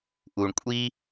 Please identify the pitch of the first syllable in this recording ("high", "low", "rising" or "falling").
low